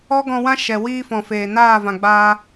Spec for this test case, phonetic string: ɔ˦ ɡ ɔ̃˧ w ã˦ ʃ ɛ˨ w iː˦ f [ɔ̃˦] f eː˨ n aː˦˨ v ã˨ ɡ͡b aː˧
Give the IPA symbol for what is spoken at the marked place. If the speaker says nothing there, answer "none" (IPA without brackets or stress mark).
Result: ɔ̃˨